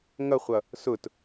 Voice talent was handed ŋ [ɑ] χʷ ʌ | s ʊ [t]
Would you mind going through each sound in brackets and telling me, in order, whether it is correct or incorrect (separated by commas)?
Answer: incorrect, correct